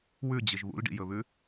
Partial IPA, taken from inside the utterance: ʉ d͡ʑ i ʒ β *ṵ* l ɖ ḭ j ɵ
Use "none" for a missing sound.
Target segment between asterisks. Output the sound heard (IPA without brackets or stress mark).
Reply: ṵ